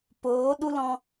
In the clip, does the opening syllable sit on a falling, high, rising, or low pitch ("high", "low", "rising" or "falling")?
rising